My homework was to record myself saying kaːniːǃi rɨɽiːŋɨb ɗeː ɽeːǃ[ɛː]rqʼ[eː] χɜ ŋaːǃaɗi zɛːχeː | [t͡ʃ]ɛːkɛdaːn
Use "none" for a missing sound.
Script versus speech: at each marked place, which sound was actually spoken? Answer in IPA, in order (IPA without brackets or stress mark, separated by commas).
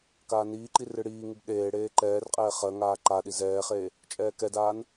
ɛː, ɛː, t͡ʃʼ